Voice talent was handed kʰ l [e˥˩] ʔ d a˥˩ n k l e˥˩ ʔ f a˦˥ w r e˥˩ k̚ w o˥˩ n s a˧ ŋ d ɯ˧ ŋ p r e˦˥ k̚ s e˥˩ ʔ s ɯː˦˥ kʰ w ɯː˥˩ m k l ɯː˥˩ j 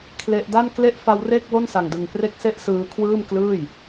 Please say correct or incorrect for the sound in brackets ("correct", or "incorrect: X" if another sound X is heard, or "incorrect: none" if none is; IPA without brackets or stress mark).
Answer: incorrect: e˦˥